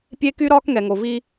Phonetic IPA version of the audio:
pʲe˦ ky˦ɾɒː˦k ŋɛ˨ŋo˨vi˦

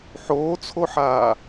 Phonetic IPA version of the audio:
ħoːt͡sʰoħaː

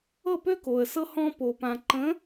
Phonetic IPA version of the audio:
ɤ˦˨pø˦ko˨ə̯sɤ˦ hɔ̃˦ po˨pã˨ ǃə̃˨˦

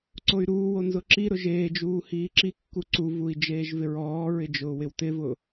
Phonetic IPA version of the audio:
ǀoy̯ɾuːwo nzʊǁiɾʊ ʒeːd͡ʒuː hiːǁikːu ǀuvui̯ d͡ʒeːʒvɪɹɔːɹɪ d͡ʒʊːwɪwtɪvʊ

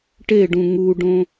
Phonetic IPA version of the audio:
ʈeɖũ ŋuɖõ

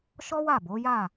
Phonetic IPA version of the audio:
ʃɔ˦wa˦˨bo˨˦ja˦˨

